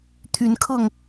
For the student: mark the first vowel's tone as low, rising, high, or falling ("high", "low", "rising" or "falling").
rising